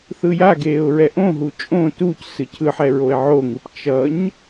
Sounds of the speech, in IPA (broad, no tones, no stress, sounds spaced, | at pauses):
θ ɯ j a ɡ eː ʊ̯ ɹ ɛ ʔ õ ɦ u t͡ʃʼ õ t u c s ɯ cʰ ɯ ħ ɛ ɹ o ɪ̯ ʕ o ŋ ɯ p t͡ʃ ʌ ɲ